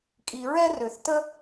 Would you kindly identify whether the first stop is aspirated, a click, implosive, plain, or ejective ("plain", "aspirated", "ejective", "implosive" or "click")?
ejective